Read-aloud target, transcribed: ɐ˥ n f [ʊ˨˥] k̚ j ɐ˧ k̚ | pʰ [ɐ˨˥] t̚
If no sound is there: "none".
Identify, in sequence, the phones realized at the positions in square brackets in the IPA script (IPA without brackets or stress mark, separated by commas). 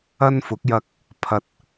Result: ʊ˨˥, ɐ˨